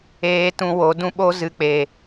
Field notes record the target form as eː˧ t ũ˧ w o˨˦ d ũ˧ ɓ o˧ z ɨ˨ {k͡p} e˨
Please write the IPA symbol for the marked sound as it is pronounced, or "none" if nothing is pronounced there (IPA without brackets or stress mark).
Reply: k͡p